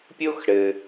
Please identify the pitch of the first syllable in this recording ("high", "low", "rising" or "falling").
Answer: high